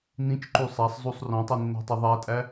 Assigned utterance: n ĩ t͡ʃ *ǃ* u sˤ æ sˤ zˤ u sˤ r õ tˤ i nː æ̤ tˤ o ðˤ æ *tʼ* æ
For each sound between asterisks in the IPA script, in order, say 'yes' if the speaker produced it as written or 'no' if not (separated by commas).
yes, yes